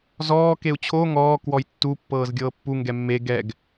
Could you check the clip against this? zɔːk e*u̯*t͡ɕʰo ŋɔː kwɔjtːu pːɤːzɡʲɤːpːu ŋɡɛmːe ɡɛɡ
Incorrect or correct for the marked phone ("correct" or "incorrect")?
correct